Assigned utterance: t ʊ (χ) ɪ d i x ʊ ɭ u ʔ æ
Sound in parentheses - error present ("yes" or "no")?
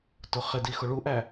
no